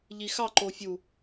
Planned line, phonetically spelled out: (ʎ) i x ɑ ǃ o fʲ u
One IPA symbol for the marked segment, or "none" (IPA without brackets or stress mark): ʎ